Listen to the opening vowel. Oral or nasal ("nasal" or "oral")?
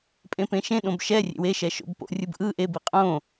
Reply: nasal